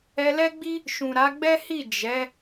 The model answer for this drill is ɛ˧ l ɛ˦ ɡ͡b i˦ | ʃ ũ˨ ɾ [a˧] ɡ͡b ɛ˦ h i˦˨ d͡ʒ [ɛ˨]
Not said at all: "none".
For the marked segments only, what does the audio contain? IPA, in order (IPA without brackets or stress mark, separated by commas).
a˨˦, ɛ˨˦